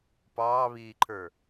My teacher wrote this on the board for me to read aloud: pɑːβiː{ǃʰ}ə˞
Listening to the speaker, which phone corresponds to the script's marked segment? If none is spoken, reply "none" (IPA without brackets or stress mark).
ǃʰ